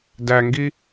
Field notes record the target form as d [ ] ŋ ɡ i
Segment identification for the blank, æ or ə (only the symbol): æ